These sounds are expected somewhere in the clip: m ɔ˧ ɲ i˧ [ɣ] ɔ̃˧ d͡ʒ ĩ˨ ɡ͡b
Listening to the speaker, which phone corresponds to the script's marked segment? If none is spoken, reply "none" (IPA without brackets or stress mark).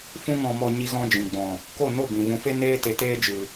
ɣ